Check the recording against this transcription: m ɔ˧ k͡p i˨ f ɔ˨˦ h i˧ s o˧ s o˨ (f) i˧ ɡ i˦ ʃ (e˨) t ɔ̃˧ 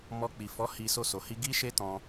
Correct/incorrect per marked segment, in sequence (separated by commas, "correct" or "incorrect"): incorrect, incorrect